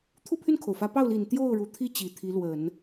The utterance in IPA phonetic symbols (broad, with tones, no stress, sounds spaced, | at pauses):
t̪ʰ u˥˧ pʰ y˥˩ n kʰ o˩ ʊ̯ f ä˧˥ p ɑ˥˩ ʊ̯ l i˨˩ n t̪ j o˥˩ ʊ̯ ɻ u˨˩ t̪ʰ i˥˩ t͡ɕ i˨˩ t̪ʰ i˧˥ l w ə˨˩˦ n